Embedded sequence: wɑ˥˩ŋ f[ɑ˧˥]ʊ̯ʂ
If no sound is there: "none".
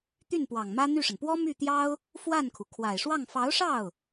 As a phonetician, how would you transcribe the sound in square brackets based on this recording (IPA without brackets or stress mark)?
ɑ˧˥